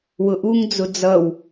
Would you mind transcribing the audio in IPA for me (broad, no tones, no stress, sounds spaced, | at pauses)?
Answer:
w ʊ ʔ u ŋ d͡z ʊ d͡z ʌ w